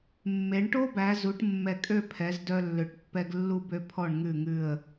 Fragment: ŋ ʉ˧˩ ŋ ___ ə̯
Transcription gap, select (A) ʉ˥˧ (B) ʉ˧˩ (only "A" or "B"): B